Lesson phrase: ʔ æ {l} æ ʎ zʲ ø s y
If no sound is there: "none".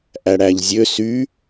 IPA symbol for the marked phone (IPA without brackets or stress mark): ɽ